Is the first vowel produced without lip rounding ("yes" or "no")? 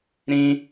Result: yes